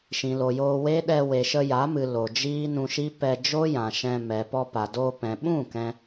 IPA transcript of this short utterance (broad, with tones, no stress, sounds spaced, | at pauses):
ʃ ĩ˨ l o˨ j oː˧ w e˦ ɗ ɛ˧ w e˨ ʃ ə˧ j a˨˦ m ɨ˨ l o˨ d͡ʒ iː˦ n ũ˧ ʃ i˦ p ɛ˧ d͡ʒ o˦ j ã˨ ʃ ɛ̃˧ m ɛ˨ p ɔ˧ p a˨ d oː˧ p ɛ̃˨ ɓ ũ˦˨ k ɛ̃˧